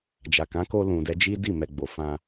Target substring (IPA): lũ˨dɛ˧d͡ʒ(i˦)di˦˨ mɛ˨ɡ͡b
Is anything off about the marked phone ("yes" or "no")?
no